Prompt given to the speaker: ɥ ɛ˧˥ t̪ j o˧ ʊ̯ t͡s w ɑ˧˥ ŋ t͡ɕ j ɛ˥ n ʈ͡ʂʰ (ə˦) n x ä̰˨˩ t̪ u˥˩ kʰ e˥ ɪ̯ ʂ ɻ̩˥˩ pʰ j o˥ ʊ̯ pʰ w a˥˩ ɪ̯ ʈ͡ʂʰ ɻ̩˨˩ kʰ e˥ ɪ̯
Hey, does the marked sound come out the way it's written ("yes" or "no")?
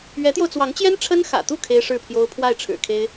no